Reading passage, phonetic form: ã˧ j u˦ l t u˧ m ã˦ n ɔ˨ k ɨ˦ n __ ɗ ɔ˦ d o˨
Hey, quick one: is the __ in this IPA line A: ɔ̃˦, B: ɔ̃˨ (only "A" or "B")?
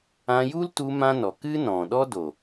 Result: B